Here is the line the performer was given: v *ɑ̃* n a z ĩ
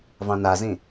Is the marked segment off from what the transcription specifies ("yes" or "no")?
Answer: no